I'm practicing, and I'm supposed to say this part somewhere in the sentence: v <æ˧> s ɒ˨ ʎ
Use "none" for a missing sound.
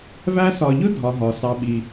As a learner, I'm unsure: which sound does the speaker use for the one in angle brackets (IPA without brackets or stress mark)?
æ˧